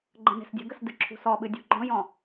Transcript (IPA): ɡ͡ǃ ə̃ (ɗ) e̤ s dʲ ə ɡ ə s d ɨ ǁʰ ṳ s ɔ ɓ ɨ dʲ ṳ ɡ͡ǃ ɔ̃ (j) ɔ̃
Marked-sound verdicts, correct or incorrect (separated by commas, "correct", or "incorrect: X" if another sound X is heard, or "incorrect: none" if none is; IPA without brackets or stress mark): incorrect: n, correct